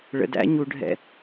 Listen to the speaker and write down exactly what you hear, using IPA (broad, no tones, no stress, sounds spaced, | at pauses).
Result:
ɭ ə̰ d æ̰ ɲ u ɖʱ ɛ̰